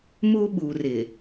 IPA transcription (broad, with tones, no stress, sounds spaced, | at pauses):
m u˦ ɓ u˨ r ɪ˨